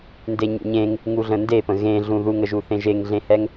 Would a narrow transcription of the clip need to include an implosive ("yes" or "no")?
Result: no